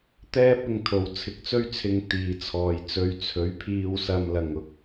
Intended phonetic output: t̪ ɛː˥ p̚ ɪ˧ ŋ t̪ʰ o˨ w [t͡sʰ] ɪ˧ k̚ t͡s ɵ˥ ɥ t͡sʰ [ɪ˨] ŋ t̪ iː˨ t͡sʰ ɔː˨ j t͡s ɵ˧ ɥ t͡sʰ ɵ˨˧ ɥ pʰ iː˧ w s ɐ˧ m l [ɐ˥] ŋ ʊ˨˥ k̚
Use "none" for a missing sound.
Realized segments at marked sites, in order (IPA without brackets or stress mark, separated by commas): t͡sʰ, ɪ˧, ɐ˧